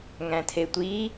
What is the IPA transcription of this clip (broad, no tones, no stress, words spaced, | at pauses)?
ŋæ̃tʰetʷi